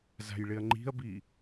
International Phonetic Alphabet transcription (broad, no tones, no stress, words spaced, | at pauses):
za̤jɭɪɐ̯ŋ͡ǃi̤ɐ̯bi